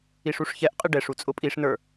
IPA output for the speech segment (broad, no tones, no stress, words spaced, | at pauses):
iʂuʂçɛʔqʼɪ ɖɛʂu t͡sʼʊpʼiʂnə˞